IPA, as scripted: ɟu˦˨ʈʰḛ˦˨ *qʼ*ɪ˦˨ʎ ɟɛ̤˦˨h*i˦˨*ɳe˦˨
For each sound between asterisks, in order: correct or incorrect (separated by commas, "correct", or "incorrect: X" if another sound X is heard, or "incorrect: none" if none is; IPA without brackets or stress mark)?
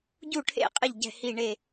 correct, correct